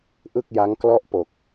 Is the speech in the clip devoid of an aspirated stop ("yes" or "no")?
yes